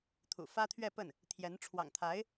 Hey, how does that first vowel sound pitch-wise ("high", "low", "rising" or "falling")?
low